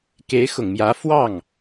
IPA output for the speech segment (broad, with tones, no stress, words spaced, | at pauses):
ke˧˥ɪ̯xʊ˨˩ŋmjä˧˥ fwɑ˥˩ŋ